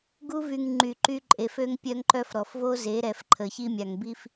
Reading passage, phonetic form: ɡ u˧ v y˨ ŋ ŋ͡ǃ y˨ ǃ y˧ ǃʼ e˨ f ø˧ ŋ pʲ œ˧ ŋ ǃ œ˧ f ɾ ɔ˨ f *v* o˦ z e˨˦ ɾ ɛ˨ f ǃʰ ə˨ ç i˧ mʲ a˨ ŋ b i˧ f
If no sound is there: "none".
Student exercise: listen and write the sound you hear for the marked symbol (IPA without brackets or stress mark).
v